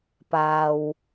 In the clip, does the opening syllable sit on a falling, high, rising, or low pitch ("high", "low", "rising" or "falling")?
low